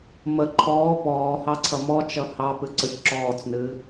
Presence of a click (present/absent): present